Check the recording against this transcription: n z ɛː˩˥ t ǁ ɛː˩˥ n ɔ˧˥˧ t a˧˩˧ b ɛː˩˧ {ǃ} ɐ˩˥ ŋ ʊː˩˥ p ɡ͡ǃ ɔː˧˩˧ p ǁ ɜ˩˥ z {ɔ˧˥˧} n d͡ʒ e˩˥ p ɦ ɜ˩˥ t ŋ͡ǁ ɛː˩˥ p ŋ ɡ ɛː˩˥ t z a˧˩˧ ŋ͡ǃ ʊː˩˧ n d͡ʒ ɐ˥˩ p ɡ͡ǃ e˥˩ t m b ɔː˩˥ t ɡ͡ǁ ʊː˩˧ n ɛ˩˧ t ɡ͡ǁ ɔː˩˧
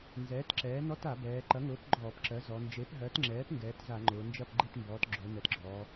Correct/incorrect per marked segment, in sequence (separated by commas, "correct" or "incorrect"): correct, incorrect